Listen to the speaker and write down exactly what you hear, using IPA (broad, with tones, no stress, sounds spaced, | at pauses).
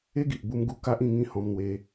e˦ ɡ i˨ ʔ b u˧ m ɡ u˧ k a˦ ʔ ĩ˥˧ ŋ ĩ˥˧ h ɔ̃˧ m n̪ w e˧